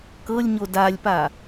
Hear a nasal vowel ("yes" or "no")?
no